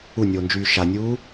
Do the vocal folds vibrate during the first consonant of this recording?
yes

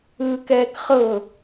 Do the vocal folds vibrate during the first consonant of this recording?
no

